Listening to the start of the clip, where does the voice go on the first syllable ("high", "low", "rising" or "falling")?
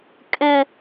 high